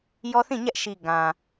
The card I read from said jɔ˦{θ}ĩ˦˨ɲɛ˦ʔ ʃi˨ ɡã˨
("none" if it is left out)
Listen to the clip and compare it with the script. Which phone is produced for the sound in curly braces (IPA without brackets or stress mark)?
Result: θ